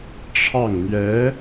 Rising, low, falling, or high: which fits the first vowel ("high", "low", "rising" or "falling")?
falling